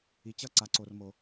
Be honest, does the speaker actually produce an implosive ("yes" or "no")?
no